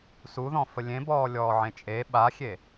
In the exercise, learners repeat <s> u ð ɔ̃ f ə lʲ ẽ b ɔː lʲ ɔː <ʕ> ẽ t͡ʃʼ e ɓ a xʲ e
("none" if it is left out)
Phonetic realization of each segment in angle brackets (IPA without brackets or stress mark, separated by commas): s, ʕ